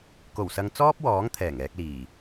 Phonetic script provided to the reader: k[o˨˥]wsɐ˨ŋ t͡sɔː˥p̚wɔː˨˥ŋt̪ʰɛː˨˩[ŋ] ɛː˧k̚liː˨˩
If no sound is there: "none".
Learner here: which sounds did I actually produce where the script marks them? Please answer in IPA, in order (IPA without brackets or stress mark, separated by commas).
o˨˩, ŋ